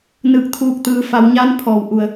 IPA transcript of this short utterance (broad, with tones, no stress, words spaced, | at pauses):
nɯː˧˩k̚t̪ʰuː˧˩k̚ t̪ɯː˩fa˩˧wɲa˧˥n pʰɔː˩wʔu˩ə̯